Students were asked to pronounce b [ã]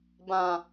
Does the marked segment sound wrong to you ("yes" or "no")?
no